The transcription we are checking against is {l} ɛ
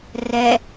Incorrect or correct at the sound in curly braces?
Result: incorrect: r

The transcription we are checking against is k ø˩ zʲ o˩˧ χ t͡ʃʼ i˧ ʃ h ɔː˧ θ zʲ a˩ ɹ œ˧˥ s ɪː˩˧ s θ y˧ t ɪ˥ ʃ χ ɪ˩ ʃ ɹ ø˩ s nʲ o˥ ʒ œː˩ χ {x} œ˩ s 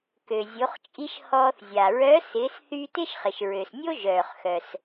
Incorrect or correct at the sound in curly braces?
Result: correct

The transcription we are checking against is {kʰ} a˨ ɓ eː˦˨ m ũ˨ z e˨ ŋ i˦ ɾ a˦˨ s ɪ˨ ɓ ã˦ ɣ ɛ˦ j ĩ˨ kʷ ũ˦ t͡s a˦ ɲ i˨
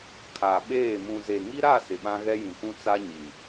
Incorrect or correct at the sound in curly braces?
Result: correct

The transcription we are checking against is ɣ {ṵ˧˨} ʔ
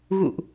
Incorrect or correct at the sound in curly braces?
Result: correct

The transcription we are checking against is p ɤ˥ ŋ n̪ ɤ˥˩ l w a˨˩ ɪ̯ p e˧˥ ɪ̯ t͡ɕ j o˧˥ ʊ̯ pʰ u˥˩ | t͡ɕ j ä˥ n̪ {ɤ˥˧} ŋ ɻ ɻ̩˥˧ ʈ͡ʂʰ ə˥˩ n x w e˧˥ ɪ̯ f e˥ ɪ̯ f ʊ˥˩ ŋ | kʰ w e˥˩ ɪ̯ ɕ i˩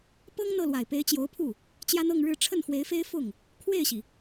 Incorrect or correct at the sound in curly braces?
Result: correct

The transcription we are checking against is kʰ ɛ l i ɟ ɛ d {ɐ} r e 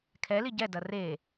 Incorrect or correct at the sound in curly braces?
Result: correct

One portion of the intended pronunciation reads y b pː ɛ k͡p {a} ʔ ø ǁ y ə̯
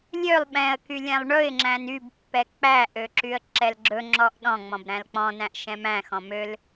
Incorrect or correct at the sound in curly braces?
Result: incorrect: æ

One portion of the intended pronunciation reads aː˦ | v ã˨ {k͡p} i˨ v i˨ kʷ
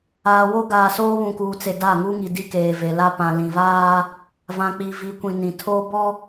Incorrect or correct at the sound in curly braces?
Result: correct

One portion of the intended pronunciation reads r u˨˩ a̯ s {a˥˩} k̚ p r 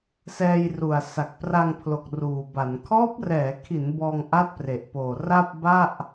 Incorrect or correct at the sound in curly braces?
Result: incorrect: a˨˩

